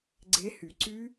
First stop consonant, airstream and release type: click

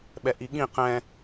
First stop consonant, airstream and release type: implosive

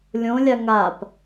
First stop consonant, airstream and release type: plain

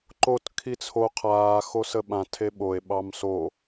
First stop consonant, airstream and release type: click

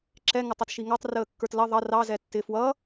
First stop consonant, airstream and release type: click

